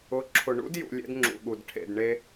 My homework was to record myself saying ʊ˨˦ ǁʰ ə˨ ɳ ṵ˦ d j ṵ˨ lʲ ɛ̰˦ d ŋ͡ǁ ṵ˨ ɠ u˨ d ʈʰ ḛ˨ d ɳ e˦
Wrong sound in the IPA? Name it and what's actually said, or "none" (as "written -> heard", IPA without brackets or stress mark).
ə˨ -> ʊ˨